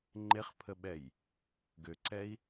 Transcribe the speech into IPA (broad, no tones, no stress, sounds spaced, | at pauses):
ŋ͡ǃ e χ pʰ ə ɓ ɛ j | ɡ ø ǀ ɛ i̯